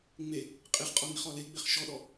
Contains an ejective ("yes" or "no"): yes